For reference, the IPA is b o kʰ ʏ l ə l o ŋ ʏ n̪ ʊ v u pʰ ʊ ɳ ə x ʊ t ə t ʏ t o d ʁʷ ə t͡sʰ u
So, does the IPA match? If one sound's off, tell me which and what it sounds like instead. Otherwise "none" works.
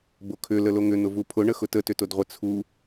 none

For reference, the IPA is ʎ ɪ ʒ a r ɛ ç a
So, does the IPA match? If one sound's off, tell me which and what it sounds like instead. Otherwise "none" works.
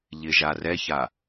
none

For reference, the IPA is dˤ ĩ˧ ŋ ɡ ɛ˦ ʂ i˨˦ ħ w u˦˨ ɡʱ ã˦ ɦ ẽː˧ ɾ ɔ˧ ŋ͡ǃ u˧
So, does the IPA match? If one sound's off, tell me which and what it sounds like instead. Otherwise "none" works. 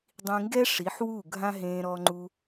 none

